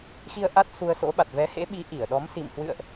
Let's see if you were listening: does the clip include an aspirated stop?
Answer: no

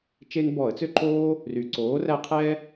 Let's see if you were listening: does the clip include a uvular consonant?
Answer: yes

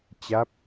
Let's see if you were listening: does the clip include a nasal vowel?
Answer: no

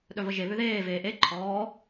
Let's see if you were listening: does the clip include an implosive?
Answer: yes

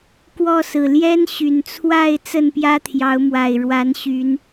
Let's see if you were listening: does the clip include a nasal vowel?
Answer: no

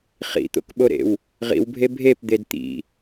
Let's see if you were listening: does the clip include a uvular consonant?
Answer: yes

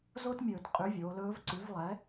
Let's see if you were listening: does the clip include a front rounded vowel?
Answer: yes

